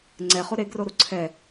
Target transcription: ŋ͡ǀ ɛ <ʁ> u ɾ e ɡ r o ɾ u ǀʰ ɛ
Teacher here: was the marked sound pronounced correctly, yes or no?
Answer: no